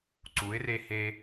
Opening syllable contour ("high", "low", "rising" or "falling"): rising